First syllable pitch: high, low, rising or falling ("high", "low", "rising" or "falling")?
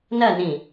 falling